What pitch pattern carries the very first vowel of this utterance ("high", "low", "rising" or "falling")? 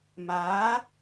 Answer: rising